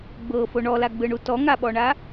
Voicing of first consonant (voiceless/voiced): voiced